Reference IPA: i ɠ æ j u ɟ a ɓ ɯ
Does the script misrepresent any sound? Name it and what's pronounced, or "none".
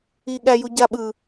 none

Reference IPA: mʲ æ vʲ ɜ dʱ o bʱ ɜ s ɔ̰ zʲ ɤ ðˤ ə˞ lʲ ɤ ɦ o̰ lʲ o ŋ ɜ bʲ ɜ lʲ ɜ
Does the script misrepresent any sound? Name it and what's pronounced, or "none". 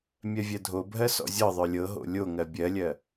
æ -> ɜ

